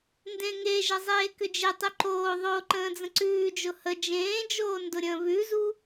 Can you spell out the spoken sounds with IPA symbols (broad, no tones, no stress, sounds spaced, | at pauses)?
n d ẽ ŋ e ʒ ə zˤ eː k ʏ d͡ʒ e tˤ ʏ ǃ oː ðˤ o ǃ ə̃ː d͡z ə̃ ǀ ʉː d͡ʒ ʊ h ə d͡ʒ ẽː d͡ʒ oː n d ʊ ɾʲ ə̃ː β ʉ z u